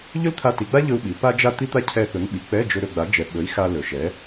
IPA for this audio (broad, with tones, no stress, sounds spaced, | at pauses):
ʎ ɵ˥ l t̪ʰ a˧ t i˩˧ ɡ͡b a˥ ʎ ɵ˧ u̯ ɓ i˩˧ p a˥ d͡ʒ a˥ t̪ i˥ t̪ a˥ cʰ ɛ˧ θ ɵ˩˥ ŋ ɓ i˩ k͡p ɛ˧˥˧ d͡ʒ ɵ˧ ɾ ɵ˧ ɡ͡b a˩˥ d͡ʒ ɛ˩˧ ɓ ɵ˩˥ i̯ x a˧ l ɵ˩ ʃ ɛ˩˥